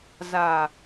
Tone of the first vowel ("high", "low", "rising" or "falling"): low